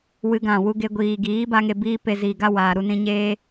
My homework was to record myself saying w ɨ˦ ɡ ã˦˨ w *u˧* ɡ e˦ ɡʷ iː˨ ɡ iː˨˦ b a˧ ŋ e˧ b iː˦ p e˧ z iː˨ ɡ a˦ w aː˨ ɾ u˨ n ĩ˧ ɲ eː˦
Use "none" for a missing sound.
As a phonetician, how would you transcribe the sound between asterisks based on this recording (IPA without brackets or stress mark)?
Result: u˦